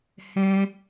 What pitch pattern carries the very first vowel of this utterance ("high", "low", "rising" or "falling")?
high